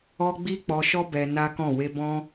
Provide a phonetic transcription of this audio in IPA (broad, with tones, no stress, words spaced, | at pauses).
ɔ˦ ɡ͡bi˦k͡pɔ˧ʃɔ˦ bɛ˧na˦kɔ̃˦˨ we˧bɔ̃˦